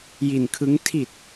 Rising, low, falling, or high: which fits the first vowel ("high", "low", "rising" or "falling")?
low